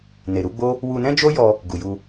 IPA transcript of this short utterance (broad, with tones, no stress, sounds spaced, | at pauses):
n e˨ ɾ u˨˦ ɡ͡b o˦ | w u˧ n ɛ̃˦ d͡ʒ o˦ j ɔ˧ | ɡ u˨ j u˧